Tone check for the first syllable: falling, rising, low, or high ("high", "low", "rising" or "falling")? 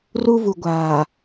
high